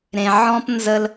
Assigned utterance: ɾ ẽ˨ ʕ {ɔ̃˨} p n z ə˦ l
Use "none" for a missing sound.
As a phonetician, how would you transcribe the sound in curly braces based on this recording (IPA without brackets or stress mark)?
ɔ̃˦